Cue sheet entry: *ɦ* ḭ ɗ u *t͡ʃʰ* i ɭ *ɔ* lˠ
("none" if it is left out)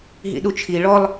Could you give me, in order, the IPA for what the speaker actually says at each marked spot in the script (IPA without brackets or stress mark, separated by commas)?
ɦ, t͡ʃʰ, ɔ